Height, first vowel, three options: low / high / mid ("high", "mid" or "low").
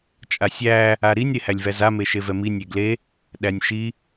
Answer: low